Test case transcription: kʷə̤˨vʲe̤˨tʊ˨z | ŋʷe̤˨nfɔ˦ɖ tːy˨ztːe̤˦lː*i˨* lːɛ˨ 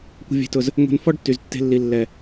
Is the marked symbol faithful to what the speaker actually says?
yes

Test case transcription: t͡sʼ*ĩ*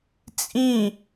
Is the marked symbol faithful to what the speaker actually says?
yes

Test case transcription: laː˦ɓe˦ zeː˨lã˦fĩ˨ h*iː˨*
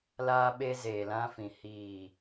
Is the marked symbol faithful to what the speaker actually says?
no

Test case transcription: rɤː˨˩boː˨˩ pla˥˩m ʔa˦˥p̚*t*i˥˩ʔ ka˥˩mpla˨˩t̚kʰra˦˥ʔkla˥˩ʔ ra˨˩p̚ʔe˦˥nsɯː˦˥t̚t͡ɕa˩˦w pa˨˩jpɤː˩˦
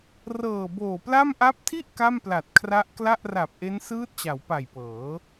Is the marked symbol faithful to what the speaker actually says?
no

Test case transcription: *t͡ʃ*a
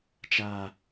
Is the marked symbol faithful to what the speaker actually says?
yes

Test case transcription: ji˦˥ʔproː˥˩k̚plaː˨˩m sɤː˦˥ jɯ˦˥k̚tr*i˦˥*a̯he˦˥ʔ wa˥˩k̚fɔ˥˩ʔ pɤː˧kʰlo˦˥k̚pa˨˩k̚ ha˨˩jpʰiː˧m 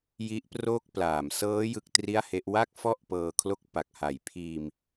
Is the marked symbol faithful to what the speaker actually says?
no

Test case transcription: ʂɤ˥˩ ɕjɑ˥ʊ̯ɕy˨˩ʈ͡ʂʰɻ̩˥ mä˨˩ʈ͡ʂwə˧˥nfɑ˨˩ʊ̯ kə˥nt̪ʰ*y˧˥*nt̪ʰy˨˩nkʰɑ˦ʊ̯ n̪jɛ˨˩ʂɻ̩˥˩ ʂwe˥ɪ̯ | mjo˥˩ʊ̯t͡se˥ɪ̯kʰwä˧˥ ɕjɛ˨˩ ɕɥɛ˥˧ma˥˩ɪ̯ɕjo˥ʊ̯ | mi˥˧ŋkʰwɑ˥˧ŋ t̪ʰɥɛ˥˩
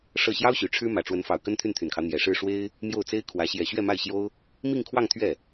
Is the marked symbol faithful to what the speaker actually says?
no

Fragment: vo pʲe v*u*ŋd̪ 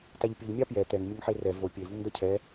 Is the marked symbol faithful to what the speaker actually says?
yes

